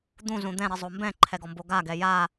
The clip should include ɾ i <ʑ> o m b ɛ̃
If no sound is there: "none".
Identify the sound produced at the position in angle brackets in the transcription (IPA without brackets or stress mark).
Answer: zˤ